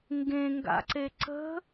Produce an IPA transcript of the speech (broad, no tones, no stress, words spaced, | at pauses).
ŋɡẽŋɡa̰ǀe ǀə̤